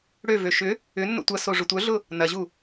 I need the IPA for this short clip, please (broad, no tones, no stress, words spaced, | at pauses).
ɽøvø ʃʏ | ʏnːo̰ tʷɐso ʐʊtʷœɮʊ | nɐʑu